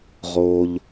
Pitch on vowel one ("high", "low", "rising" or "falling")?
low